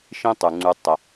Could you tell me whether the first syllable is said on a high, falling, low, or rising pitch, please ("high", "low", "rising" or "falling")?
high